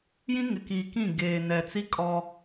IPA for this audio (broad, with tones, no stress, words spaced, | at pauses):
jĩ˦ŋɪ˨ki˨kĩ˦˨ ɡeː˨nɛ˨t͡si˦ kʼɔ˦